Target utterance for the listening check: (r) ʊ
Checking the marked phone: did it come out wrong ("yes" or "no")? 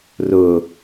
no